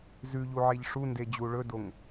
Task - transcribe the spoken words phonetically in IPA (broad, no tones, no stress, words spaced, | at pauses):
zʉʎuʕeʎ ʂunded͡ʑu ɭɵdoŋ